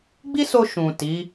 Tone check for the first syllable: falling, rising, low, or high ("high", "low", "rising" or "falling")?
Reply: high